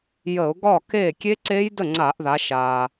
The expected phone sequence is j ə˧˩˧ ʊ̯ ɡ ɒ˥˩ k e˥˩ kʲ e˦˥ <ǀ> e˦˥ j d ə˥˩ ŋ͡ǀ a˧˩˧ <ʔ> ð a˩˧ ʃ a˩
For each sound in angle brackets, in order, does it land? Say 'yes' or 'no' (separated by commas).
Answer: yes, yes